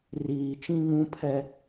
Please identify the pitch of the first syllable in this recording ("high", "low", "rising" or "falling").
low